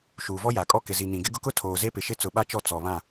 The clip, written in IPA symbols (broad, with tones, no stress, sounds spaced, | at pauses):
ʃ uː˨ v ɔ˦ j a˨ kʼ ɔ˦ k ɪ˨ z i˨ n ĩ˨ ɡ ɪ˦ ɡ ʊ˦ k ʊ˦ tʰ oː˨ z e˦ p ɪ˨ ʃ ɪ˦ t͡s ʊ˨ ɓ a˦ t͡ʃ ɔ˦˨ t͡s ɔ˨ β ã˦˨